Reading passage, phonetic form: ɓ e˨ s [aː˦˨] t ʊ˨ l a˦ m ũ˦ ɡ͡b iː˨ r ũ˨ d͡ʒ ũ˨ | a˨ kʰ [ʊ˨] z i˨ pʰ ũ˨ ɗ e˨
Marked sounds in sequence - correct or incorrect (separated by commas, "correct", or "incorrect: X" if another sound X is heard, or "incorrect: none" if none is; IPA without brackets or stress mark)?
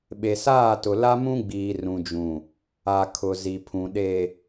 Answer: correct, correct